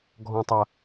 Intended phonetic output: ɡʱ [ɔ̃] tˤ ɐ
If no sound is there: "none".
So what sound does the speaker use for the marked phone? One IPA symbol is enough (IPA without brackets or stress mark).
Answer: ɔ̃